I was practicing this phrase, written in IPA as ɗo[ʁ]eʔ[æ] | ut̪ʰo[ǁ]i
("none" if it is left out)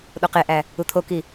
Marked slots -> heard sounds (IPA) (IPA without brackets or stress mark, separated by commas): q, æ, k